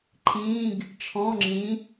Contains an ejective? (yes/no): no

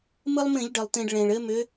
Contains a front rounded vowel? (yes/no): yes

